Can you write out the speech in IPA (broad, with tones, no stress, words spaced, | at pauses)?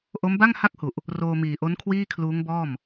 ʔo˦˥mba˥˩ŋha˥˩k̚hu˨˩ʔ | roː˧miː˨˩ʔo˦˥n kʰwiː˥˩kʰluː˦˥ŋbɔː˥˩m